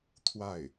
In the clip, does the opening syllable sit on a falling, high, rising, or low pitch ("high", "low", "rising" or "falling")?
falling